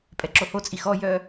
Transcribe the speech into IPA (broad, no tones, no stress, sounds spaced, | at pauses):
pʼ ɛ ǁ o h o t͡sʼ i x ɔ j œ